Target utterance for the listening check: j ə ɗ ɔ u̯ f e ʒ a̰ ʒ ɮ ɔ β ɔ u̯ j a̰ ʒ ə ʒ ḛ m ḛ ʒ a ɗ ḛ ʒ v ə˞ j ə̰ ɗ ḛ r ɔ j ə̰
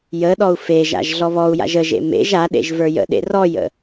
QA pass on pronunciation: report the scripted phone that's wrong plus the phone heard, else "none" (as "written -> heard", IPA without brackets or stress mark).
none